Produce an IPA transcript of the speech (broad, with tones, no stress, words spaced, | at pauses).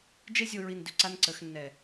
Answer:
d͡ʒe˦zʲo˧ ɹi˧ndʏ˧ǀa˦nǀə˨˦x nːɛ˨